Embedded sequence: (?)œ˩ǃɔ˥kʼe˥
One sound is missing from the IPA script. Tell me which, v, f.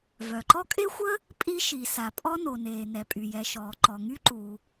v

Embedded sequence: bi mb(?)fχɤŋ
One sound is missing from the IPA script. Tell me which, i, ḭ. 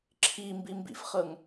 ḭ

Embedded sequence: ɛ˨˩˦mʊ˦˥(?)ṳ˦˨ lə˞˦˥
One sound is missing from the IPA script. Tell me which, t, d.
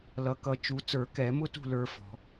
t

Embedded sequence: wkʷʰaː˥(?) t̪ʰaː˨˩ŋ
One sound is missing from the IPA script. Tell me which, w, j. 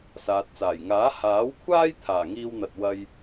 j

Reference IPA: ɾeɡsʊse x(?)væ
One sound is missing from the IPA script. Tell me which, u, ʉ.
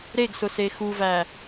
u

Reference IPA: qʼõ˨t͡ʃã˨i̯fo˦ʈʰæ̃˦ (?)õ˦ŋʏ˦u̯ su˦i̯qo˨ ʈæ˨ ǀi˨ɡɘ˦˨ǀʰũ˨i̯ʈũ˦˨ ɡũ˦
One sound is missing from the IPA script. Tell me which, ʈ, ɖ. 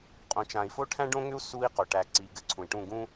ɖ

